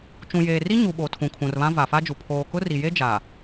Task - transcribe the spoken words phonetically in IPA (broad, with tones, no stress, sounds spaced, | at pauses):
t͡ʃ ũ˨ j eː˨ r i˦ ɲ u˨ ɓ o˨ tʰ ũ˨ kʰ ũ˨ r β ã˦ v a˨ f a˦ d͡ʒ u˨ pʰ oː˨ k ʊ˦ r i˨ j e˦ d͡ʒ a˨